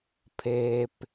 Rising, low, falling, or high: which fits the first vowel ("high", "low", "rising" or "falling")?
low